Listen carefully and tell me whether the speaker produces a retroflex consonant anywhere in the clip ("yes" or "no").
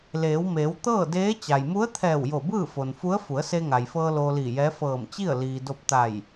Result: no